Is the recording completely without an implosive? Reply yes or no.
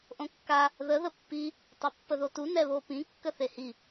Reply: yes